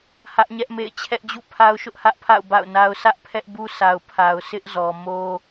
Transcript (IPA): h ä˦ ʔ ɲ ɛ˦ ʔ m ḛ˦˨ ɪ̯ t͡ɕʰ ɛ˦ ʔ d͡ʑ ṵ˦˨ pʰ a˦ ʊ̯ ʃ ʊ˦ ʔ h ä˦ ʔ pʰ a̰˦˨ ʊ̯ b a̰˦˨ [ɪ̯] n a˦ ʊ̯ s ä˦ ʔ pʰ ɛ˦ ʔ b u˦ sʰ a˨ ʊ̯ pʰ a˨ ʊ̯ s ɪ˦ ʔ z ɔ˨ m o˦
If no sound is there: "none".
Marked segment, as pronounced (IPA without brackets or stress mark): ʊ̯